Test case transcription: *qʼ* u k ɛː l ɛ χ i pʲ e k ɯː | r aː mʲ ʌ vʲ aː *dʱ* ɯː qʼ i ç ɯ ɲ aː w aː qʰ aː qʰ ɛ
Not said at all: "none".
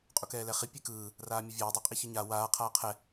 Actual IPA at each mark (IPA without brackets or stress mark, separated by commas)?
qʼ, dˤ